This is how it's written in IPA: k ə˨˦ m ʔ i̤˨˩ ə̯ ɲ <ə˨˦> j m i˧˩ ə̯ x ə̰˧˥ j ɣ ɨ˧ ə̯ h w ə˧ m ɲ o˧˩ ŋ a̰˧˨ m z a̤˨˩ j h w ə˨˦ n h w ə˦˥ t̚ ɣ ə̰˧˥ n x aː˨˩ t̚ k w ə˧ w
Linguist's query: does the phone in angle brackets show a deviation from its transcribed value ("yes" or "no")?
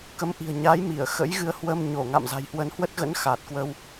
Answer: yes